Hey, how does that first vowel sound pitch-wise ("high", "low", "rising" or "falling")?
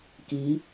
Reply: rising